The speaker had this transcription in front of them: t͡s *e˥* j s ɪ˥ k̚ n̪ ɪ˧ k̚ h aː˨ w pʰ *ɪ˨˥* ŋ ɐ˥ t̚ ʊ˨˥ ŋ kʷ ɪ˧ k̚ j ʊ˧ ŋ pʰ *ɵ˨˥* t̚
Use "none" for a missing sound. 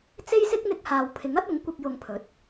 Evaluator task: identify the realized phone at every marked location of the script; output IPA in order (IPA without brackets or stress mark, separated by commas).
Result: e˥, ɪ˨˥, ɵ˨˥